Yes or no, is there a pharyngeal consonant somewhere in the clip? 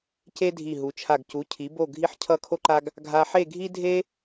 yes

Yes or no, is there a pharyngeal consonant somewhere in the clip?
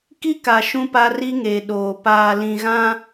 no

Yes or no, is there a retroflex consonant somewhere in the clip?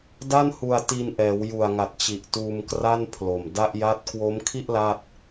no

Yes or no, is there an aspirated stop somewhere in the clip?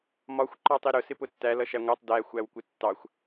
no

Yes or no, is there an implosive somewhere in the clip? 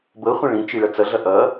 no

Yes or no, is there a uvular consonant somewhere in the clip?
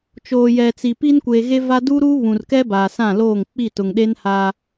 no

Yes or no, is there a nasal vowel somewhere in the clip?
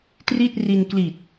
no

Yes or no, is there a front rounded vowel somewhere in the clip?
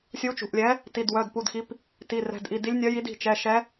yes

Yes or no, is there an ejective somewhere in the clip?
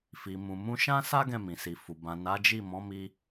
no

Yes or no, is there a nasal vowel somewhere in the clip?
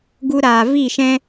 yes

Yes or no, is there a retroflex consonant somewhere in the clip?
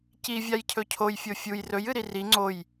no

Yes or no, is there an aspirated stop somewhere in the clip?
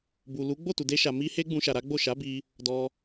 no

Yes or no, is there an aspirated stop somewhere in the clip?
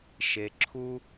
yes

